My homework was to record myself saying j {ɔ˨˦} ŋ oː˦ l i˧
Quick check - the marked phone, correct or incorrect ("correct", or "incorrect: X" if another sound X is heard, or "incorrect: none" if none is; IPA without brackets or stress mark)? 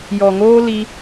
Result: incorrect: ɔ˨